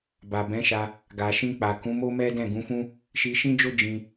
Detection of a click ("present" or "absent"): absent